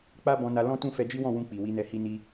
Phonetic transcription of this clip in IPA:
k͡pa˦bɔ̃˧na˧ lɔ̃˦tũ˦˨ fɛ˧d͡ʒi˦wɔ̃˦˨ wũ˧ k͡pi˨wi˨˦nɛ˧ hi˧ni˧

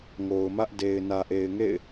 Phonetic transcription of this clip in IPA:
ŋo˨ʊ̯mä˦ʔ de˨ɪ̯ nä˨ʔe˨ɪ̯ŋḛ˦˨ɪ̯

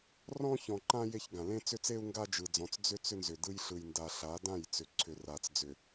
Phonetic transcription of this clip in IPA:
rɔ̃˦çɔ̃˨ǃã˦ je˦çɡã˨ lẽ˦t͡sʏ˦t͡se˦u̯ ŋɡa˦d͡ʒɯ˨d͡zɔ̃˨t͡s d͡zʏ˦ t͡sʏ˦nzʏ˨dɯ˦j ɬɯ˨jnda˨ ɬa˨˦dã˦˨jt͡sʏ˨ ǀʰʏ˨ra˨t͡sd͡zʏ˨

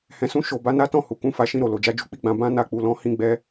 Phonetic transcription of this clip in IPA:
hɛ̃˨sũ˧ ʃo˨ba˨˦ na˦tɔ̃˦˨ hu˨kũ˧ fa˨ʃĩ˧ɾo˨ lo˨d͡ʒa˨˦d͡ʒu˧ k͡pi˦ɡ͡bã˧ bã˦ na˧k͡pu˨lɔ̃˧ hĩ˦ɡ͡bɛ˦

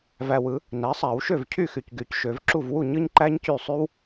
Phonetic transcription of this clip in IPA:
væ˨wɯ˨˩˦ | næ˩˥sˤæ˨˩˦wʃø˥˩vcʰy˥˩ xy˨cɡy˨˩˦cʃø˨˩˦vǁu˥˩v wu˥˩ ɲɯ˥ɲǃæ˥ɲcy˥˩sˤy˥w

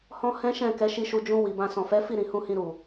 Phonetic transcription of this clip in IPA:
hɔ̃˦ hɛ̃˦ʃɛ̃˦˨ kɛ˨˦ʃi˧ʃu˧ d͡ʒũ˧ wi˨bã˧ sɔ̃˨fɛ˨˦ fi˦˨ɾĩ˨hũ˧hĩ˧ ɾu˨

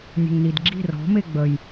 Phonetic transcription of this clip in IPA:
nʲə̤ŋnidɡ͡ǁi̤ rɔ̤me ɡ͡bəj

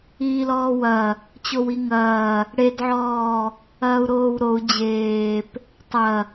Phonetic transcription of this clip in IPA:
iːlɔːwɐ | t͡ɕowiŋɐː | ɽedʕɔː | ɐːu̯ɾoːwɾou̯ d͡ʑeːp | tˤɐ

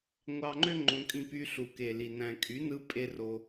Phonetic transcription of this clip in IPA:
ŋʷɑ˧ŋ͡ǃø˦ŋ͡ǃõ˧kʼĩ˧ py˧ ɬu˨ke˨li˨ næ̃˨kʼy˨˦nɯ˧ pʼe˧ ro˧

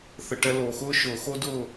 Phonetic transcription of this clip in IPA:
θə˨ ʈɛ˧loː˨xʊː˦ ʃʊː˨xo˦dʊː˦˨

